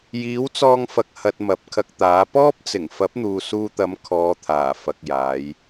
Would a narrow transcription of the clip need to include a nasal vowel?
no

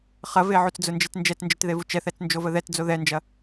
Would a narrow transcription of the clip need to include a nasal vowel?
no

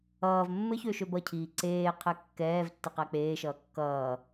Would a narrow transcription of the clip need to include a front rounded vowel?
yes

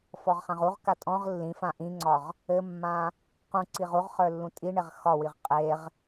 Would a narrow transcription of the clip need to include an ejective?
yes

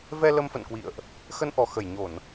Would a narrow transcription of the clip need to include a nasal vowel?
no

